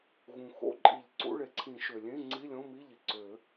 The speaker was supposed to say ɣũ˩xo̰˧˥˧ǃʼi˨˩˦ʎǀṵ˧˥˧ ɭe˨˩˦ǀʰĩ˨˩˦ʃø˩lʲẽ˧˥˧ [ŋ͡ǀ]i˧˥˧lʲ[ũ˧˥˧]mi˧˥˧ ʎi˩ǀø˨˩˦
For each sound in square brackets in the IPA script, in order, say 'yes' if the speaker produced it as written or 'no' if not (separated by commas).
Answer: yes, no